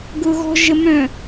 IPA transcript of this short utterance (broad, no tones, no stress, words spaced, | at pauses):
ɡʊɣɔ̤ʒəmœ̃